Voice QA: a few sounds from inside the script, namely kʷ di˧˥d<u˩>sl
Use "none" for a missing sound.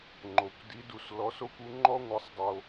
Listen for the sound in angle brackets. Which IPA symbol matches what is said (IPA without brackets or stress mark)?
u˧